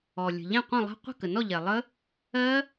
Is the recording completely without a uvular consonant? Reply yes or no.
no